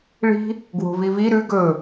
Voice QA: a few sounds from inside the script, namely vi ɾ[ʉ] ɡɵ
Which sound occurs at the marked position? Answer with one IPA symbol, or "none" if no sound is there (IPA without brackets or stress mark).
ʉ